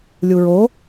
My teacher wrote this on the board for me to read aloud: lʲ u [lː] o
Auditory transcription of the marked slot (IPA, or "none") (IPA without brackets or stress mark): ɹ